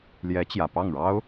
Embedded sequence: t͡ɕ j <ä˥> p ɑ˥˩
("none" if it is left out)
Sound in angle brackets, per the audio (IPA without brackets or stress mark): ä˨˩